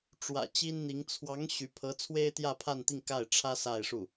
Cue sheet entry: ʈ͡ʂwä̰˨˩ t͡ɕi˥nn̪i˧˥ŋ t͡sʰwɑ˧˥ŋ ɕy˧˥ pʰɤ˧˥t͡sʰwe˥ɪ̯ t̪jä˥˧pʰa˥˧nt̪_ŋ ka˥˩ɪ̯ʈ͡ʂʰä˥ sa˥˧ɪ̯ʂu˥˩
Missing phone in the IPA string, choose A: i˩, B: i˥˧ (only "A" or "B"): B